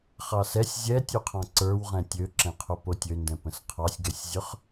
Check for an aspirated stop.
present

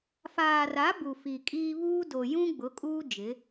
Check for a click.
absent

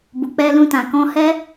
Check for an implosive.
absent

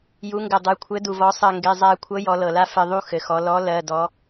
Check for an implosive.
absent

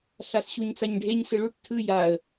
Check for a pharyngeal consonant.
absent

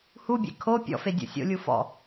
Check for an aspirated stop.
present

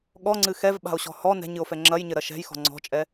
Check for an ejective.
present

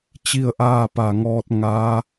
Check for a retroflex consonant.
absent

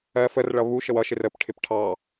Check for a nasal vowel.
absent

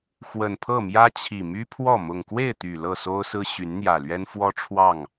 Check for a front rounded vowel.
present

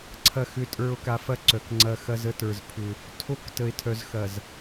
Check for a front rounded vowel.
present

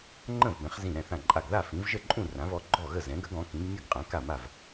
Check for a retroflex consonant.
absent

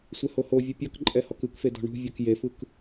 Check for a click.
present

